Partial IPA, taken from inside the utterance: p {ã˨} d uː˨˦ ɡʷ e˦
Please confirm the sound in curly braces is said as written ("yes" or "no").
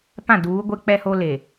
no